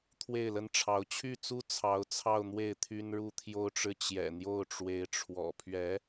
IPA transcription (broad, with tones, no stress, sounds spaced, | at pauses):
t̪ʰ w e˥˩ ɪ̯ l ə˥ n ʈ͡ʂʰ ɑ˧˥ ʊ̯ t͡ɕʰ y˥˩ t͡s u˥ t͡sʰ ɑ˧˥ ʊ̯ t͡sʰ ɑ˥˧ ʊ̯ n̪ w e˥˩ ɪ̯ t̪ʰ y˥ n ɻ u˥ t̪ʰ j o˥ ʊ̯ ʈ͡ʂ ɻ̩˥˩ t͡ɕ j ɛ̰˨˩ n̪ j o˥˩ ʊ̯ ʈ͡ʂ w e˧˥ ɪ̯ ʈ͡ʂʰ w ɔ̰˨˩ pʰ ɥ ɛ˧˥